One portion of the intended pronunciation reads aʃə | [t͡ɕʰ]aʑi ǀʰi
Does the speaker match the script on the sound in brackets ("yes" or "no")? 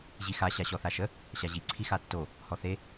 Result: no